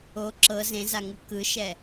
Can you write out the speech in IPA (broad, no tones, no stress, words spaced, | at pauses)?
o ǁɤ zẽzaŋu kɯʃɛ